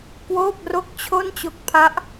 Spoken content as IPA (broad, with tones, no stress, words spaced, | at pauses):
kwoː˥˩p̚ro˥˩k̚t͡ɕʰo˥˩nt͡ɕo˦˥k̚ pʰa˦˥ʔ